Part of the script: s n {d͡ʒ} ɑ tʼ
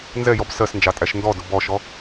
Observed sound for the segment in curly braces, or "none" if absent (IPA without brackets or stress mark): d͡ʒ